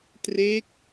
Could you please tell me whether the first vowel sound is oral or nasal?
oral